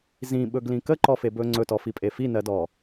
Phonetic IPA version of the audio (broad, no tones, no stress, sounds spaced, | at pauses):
z ĩ ɓ ɵ ɡ l ĩ k ə ǃ ɔ f e b ɵ ŋ͡ǀ ɵ t ɔ f i pʼ e f i n ɜ d ɔ